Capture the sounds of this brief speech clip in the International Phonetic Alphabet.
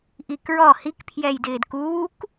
ʔ i k ɹ ɔ h i k pʰ j ɛ j d ɪː d k uː k

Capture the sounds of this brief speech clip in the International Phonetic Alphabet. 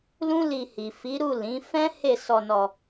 l ũ˦ l i˧ h i˨ f i˨˦ ɾ u˦˨ l ĩ˨˦ f ɛ̃˦ h e˦˨ s ɔ˧ n ɔ˧

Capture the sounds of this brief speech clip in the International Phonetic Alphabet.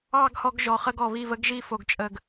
ɑ˦˨ ɡ h ɔ˧ ɡ ʒ ɔ˨ χ ə˧ ɡ ɔ˨ β i˦˨ v ə˦ ɡ ʒ i˧ f o˨ ɡ t͡ʃʼ ə˨ ɡ

